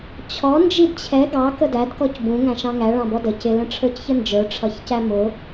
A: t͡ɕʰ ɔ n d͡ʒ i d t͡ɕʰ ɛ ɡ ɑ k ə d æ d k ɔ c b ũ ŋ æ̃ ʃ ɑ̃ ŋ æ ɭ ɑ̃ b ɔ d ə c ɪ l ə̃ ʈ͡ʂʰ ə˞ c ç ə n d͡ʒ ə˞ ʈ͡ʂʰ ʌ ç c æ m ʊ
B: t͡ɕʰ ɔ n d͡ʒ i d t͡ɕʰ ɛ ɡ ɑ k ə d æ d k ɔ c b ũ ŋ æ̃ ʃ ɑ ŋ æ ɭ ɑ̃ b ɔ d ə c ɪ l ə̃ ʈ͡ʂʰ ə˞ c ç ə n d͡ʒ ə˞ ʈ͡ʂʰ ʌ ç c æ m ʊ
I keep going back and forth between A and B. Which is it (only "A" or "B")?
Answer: A